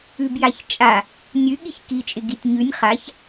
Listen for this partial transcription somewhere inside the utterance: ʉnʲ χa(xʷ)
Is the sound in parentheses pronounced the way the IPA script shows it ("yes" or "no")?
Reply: no